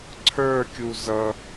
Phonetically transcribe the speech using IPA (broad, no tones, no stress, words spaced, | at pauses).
ǀʰə˞kʲu zʌ